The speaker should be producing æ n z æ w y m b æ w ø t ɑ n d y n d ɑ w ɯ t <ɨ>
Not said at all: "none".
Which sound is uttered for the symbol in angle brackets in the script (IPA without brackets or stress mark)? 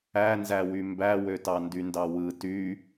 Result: y